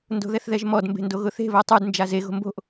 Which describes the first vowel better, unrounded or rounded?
rounded